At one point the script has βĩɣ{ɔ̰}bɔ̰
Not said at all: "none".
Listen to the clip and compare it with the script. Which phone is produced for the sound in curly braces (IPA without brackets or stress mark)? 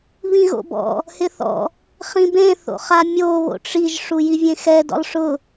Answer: o̰